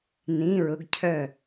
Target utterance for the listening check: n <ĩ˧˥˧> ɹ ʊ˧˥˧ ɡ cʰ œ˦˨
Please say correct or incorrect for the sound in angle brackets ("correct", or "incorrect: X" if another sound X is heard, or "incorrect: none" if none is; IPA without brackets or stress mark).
correct